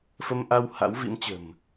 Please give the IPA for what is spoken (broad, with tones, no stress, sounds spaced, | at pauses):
f ə˧ m ʔ a˧ w h a̰˧˥ w v ḭ˧˥ m t͡ɕ ə̤˨˩ m